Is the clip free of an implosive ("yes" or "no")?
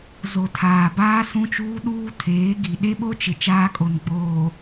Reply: no